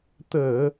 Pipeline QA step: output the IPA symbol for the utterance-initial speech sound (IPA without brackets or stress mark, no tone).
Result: t̪